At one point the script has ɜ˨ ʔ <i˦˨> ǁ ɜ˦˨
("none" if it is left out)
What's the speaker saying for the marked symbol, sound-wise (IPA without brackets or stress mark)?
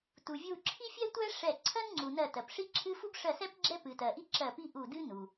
i˥